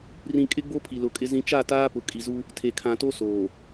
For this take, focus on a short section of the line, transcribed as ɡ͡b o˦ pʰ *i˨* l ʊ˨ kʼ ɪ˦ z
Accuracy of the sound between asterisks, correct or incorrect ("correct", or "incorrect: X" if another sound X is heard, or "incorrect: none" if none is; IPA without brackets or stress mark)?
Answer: correct